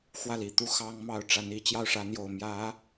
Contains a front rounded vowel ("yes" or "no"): no